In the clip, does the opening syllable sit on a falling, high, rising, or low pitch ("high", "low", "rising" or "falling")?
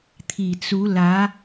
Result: low